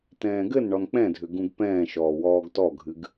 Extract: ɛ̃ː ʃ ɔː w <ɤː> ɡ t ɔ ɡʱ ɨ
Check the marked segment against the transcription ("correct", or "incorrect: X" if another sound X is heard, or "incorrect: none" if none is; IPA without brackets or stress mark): incorrect: ɔː